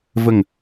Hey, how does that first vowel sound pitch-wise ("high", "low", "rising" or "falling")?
falling